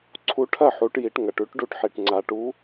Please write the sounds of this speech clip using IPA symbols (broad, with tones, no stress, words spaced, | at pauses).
ǀʰu˨˥ ʈʰɐ˥˩ħu˩˧ʈji˩˧ʈ ŋɐ˩ʈʉ˨˥ʈ ɖu˨˥ʈħi˩ʈŋ͡ǀa˩˧ʈu˨˥